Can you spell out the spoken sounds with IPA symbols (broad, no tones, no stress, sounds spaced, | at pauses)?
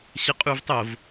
ɕ ə qʼ u v tˤ o v